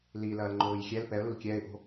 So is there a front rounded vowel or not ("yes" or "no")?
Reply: no